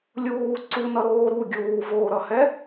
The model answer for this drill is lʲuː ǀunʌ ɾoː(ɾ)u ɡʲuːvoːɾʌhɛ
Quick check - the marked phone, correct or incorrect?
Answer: correct